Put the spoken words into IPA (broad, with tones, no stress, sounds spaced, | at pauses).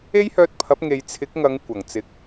e˥ j h œː˧ t̚ pʰ ɐ˨˥ p̚ ŋ e˨˧ j t͡sʰ ɪ˨˥ k̚ ŋ ɐ˨˧ ŋ kʷ ɐ˨˩ ŋ t͡s ɪ˨ k̚